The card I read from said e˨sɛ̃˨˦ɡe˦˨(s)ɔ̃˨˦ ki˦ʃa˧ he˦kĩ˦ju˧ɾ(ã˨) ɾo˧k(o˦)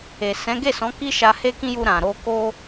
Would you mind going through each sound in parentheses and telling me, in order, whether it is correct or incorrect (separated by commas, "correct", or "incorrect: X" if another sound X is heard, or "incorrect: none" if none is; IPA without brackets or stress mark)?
correct, correct, correct